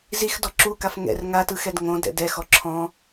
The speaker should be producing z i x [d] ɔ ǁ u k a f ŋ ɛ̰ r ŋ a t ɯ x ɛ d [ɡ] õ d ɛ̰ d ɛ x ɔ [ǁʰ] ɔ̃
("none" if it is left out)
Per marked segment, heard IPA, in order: d, ŋ, ǁʰ

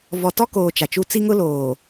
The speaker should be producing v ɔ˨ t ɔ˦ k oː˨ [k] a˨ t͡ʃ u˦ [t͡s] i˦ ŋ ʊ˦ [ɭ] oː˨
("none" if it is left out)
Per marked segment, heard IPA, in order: t͡ʃ, t͡s, l

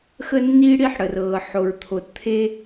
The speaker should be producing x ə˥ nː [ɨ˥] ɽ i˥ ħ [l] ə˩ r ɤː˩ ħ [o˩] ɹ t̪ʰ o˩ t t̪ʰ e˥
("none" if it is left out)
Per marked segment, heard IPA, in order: i˥, ɽ, o˩

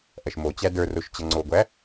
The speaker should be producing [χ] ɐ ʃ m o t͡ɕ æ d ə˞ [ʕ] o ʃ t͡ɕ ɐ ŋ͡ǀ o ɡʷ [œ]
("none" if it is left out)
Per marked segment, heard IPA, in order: ʔ, r, æ

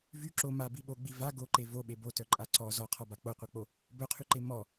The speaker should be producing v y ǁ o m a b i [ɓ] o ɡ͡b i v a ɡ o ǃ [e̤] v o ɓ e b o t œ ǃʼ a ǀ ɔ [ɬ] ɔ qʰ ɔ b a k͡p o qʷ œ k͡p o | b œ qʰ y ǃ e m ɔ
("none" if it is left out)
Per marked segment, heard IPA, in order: ɓ, e, z

